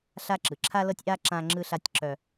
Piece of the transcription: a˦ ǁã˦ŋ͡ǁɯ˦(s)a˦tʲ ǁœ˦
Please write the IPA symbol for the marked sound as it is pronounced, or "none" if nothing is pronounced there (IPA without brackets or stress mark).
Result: ɬ